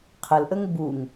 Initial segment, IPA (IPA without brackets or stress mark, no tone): qʰ